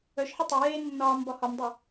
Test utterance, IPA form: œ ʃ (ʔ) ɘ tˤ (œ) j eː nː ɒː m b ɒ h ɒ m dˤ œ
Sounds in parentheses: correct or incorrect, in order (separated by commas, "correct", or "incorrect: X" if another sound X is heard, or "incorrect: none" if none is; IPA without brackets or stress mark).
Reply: incorrect: ħ, correct